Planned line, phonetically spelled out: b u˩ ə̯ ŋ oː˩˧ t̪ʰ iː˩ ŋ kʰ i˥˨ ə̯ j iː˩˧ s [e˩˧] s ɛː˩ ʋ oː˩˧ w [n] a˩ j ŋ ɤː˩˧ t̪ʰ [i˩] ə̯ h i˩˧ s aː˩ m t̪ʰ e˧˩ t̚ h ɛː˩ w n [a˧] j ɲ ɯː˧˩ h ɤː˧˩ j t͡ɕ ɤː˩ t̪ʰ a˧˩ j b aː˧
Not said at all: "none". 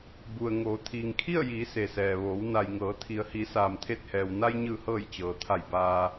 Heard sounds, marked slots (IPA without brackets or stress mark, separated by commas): e˩, n, i˩, a˧